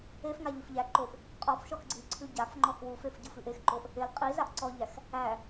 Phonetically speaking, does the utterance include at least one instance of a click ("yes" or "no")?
yes